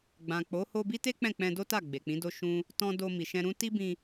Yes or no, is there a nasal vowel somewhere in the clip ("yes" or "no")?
yes